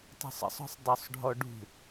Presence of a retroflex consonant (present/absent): present